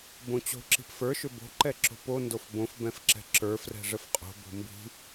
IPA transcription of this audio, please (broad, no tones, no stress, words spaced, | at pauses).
bõt͡ɕo̤ ǁi̤pfə˞ ʃʏbo̤ ǃɛǁo̤po ndofbõf bɛ̃fǁɛ̤ǁə˞ frɛ̤ʐəfqʼo̤ bo̤mbi̤